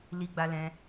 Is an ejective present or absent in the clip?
absent